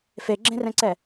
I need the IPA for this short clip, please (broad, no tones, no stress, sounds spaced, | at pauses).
f e ɡ͡ǁ ẽ r ɛ̃ ǀ ɛ